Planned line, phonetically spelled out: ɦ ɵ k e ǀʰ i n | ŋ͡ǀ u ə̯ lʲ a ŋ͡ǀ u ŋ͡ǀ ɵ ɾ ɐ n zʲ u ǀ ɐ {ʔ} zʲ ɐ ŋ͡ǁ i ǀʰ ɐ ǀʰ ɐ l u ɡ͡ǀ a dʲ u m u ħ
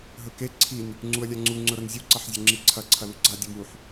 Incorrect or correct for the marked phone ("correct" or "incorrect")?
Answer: incorrect